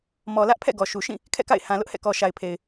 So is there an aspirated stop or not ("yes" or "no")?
yes